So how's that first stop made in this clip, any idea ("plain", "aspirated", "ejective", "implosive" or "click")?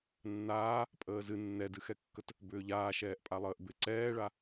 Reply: ejective